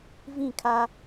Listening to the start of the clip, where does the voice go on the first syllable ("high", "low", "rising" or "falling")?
falling